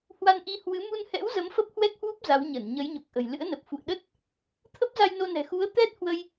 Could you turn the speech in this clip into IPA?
hwa˧nʔi˧hwɨ˨˦ mu˧nhɛ̰˧˥w zə˨˦mfə˦˥p̚hwɛ˦˥k̚hwu˦˥p̚ za˨˦wɲə˧˩n ɲə˨˦jɲo˨˩k̚ʔə̤˨˩j lɨ̰˧˥ə̯nə˨˩p̚fṵ˧˨ə̯ ɗə˦˥t̚ | t̪ʰə˦˥p̚za˧j no˧nɛ̤˨˩ xu˨˦ə̯t̪ɛ˦˥t̚hwə˧j

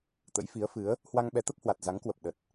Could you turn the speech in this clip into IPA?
t̪ə̰˧˥j fi˨˦ə̯fɨ˨˦ə̯ | hwa˧ŋɓɛ˨˦t̪ə˦˥p̚hwa˨˩t̚ za˨˦ŋkwə˨˩p̚ɗə˨˩t̚

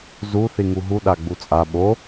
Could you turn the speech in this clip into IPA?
zu θiŋuɦu ɗaɡ͡but͡sʼa ɓo

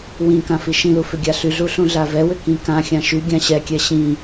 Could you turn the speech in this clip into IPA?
wĩ kãfiʃĩlu fʏɡʲaɬyɮu ɬũɮavɛwʏ kĩkãxʲã ʃy ɡʲãɕɛkʲɛ ɕĩ

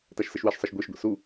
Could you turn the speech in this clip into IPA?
taʃsɘʃwɛʃsˤɐʃ ɡʷeʃɡʷḭ su

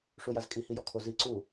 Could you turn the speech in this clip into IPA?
ʂujazkʼi hijɔkʰo zi ǀu

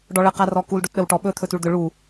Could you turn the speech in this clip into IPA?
ɖɔɭə qarɔkul ɖotɗəwʈɔ ɓɵ t̪ʰɵtuɭd̪ʏ ɭu

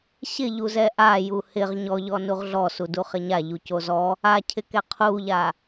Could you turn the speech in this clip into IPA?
ɕɪʎuzɛ ʔaju hɪʁ ɲɔʎɔ nuʁɮɔsu duχɪɲa ʎucozɔ | acʰɪkɛ qʰuʎa

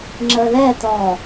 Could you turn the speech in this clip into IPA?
ŋ͡ǁəðɛt̪ɔ

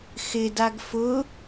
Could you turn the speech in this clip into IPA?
xɪdaɡ fʊ

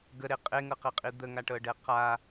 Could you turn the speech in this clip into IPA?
ɡəɾe qʼeŋɤqɛqʼi d̪əŋaʈɤɖɛ qa

